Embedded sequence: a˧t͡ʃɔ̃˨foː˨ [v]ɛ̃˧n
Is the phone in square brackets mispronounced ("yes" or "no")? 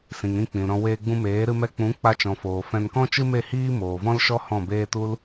yes